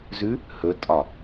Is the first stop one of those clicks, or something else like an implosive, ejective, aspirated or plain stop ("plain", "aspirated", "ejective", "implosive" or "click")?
ejective